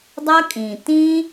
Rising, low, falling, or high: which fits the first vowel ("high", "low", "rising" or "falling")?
high